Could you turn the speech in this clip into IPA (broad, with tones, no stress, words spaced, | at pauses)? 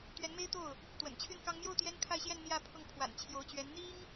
t̪ɥɛ˧˥nme˥ɪ̯t̪o˥˩ʊ̯ | t̪wə̰˨˩nt͡ɕʰy˥˩nkɑ˥ŋ mjo˥˩ʊ̯ t̪jɛ˥nkʰa˥˧ɪ̯ɕjɛ˥˧n n̪jä˥˧ pʰʊ˥˩ŋ pʰwa̰˨˩n t͡ɕʰjo˧˥ʊ̯t͡ɕɥɛ˧˥n n̪i˥ŋ